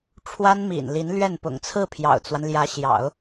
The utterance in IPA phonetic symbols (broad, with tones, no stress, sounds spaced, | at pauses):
ʈ͡ʂʰ w a˥ n m ḭ˨˩ n l i˧˥ n l ɥ ɛ˥˩ n p ʊ̰˨˩ ŋ t͡sʰ ɹ̩˥˩ pʰ j ɑ̰˨˩ ʊ̯ t͡s w a˦ n l j ä˧˥ ɕ j ɑ̰˨˩˦ ʊ̯